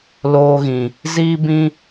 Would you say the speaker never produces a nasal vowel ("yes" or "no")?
no